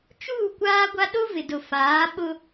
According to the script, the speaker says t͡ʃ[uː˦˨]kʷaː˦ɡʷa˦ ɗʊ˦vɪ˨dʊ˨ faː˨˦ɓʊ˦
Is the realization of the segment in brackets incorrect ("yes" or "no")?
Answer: no